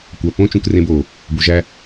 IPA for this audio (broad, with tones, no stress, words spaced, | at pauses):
kʷæ˨ põ˦ t͡ʃũ˨krẽ˨b o˨ | bu˨ʒæ˦